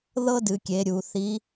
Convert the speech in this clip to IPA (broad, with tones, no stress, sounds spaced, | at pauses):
ð ɤ˥ d ɨ˩˧ kʲ e˩˧ ɾʲ u˩˧ θ i˧˥